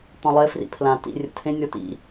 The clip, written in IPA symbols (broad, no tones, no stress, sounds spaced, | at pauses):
t̪ ɔ̃ lˠ e f r ḭ pʰ l ã t ḭ rʲ ə̰ tʰ ẽ nʲ ɔ t ḭ